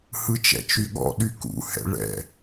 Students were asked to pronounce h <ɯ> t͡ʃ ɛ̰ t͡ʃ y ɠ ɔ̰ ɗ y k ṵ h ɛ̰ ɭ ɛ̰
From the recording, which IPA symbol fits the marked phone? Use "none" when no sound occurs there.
ɯ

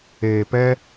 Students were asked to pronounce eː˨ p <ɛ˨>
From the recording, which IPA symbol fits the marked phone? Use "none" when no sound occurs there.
ɛ˦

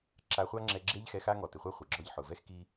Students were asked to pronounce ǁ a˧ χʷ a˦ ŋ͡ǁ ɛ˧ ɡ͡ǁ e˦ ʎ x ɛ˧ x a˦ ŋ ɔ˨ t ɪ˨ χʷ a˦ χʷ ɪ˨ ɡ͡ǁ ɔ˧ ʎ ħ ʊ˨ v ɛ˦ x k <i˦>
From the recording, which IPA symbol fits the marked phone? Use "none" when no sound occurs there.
i˦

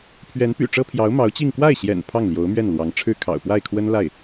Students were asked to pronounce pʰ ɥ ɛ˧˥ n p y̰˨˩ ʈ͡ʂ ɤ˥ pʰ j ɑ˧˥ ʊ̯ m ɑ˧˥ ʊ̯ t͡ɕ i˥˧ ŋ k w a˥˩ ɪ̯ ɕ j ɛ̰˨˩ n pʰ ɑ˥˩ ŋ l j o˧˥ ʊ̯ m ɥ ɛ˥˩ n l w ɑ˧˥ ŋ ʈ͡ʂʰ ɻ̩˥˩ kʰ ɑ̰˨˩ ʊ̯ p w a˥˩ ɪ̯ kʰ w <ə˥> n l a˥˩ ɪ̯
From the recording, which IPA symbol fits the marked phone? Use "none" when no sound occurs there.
ə˥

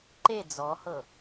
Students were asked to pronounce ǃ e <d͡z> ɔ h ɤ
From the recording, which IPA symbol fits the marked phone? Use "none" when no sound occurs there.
d͡z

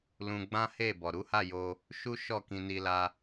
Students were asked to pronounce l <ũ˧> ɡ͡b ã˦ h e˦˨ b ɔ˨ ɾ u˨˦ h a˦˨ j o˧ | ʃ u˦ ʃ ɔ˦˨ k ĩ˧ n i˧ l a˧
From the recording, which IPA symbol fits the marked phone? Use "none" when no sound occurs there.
ũ˧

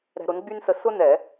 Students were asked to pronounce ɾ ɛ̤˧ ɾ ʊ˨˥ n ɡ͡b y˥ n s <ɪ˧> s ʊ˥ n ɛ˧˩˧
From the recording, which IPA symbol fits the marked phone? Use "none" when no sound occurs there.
ə˧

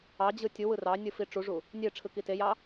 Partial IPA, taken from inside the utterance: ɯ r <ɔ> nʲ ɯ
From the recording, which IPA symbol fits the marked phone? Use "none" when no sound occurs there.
ɑ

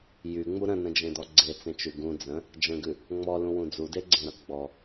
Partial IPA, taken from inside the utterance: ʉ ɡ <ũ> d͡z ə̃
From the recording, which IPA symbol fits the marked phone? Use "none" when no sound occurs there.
ũ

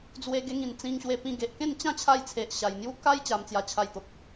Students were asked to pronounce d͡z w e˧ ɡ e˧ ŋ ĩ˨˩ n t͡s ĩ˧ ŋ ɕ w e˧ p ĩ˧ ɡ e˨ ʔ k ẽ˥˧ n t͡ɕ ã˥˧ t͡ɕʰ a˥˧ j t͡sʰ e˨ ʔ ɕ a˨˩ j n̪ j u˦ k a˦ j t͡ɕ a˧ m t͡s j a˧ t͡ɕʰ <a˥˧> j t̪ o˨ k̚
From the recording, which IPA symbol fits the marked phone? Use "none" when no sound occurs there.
a˧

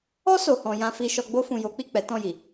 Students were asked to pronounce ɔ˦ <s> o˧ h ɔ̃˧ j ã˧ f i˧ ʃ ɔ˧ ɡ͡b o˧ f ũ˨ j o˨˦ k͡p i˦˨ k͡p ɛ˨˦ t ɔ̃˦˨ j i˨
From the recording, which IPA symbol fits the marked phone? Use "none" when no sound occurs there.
s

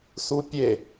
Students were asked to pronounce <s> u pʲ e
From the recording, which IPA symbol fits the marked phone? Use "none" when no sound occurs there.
s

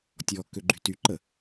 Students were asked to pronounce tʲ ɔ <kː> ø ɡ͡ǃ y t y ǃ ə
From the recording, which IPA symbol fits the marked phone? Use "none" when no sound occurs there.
kː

